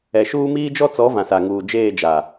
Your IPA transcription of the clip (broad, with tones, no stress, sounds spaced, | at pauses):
ɛ˨ ʃ uː˦ m iː˦ d͡ʒ ɔ˦ t͡s ɔ˨˦ v ã˨ s a˨ ŋ uː˨ d͡ʒ eː˦˨ d͡ʒ a˨